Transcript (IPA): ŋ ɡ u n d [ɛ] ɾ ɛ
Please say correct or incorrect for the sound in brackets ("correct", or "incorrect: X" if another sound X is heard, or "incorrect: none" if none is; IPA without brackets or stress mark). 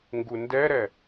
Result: correct